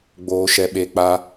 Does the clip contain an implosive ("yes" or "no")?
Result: yes